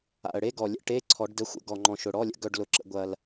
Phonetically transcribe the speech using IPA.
a̰˨˩ ə̯ ɽ e˥ ɡ ɔ˨˩ lʲ ə̰˧ ʈ e˧˥˧ ǀʰ ɔ˨˩˦ ɖ d ə˧˥ xʷ ə̰˧˥˧ ɡ ɔ˨˩ ŋ͡ǃ ɔ̃˨˩ ʃ ʊ˨˩ ɽ ɔ˧˥˧ lʲ ə̰˧˥ ɡ œ˧ ɖ l ʊ˨˩˦ ǁ ə̰˨˩˦ ɡʷ ɐ˧ l

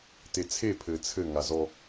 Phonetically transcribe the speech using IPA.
t e t͡sʰ e pʰ ɘː t͡sʰ ɘ ŋ a z ɔ

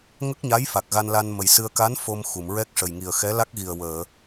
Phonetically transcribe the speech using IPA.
ŋ ə˦˥ k̚ ɲ a˧˥ j f a˨˩ k̚ ɣ a˧ n l a˧ n m ə˨˩ j s ɨ˧ ə̯ k a˧˥ n f o˧ m x u˨˩˨ m ɹ ɛ˦˥ k̚ ʂ ə˨˩ j ŋ i˨˩ ə̯ x ɛ˧˥ l a˦˥ k̚ ɣ i˨˩ ə̯ w əː˨˩˨

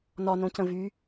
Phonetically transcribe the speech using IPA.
n ɒ n õ c ə̃ v y

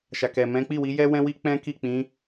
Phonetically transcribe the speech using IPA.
ʃ a˨ k ɛ˨ m ɛ̃˨˦ k͡p i˦˨ w i˨˦ j ɛ˦ w ɛ̃˦ w i˦ k͡p ɛ̃˦ k i˦˨ k͡p ĩ˨˦

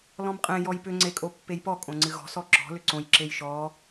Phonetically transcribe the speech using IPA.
l ɔ̃ m qʼ ẽ j ɔ j p ʏ ŋ͡ǀ e kʼ o pː e j p ɔ kʼ õ ŋ͡ǀ ɨ ɣ ɔ̤ s ɔ ǁ ɔ̤ l ʏ ǀ õ j ǁ e j ʃ ɔ

